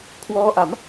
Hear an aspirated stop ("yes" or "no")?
yes